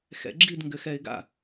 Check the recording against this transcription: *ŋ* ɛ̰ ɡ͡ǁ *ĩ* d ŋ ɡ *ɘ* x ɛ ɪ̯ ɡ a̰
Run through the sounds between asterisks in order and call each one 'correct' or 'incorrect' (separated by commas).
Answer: incorrect, incorrect, correct